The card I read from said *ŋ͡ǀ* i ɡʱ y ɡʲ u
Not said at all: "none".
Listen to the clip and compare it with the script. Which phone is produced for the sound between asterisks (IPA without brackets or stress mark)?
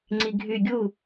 ŋ͡ǀ